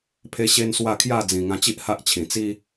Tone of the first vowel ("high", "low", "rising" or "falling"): high